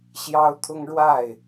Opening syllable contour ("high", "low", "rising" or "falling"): high